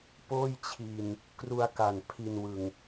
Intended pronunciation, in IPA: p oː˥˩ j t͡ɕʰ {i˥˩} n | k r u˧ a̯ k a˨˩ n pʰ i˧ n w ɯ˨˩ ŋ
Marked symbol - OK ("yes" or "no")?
no